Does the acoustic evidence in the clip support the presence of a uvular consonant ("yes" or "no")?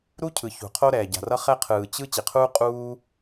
yes